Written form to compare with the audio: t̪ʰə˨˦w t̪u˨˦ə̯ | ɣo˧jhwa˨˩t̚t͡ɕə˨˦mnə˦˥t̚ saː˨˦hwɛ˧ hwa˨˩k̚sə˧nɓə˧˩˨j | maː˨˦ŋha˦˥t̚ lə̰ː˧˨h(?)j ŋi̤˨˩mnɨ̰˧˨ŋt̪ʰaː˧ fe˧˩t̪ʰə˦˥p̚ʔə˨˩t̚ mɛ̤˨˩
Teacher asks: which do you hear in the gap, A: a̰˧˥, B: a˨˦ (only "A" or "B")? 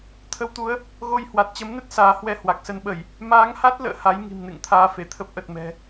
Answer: B